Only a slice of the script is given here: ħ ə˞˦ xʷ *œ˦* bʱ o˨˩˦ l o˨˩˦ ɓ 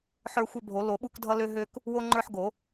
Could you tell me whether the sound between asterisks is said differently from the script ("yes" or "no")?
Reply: no